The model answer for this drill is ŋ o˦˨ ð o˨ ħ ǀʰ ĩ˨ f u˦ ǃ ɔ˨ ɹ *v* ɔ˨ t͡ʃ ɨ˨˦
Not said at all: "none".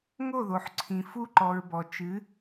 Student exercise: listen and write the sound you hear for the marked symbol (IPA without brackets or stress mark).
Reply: b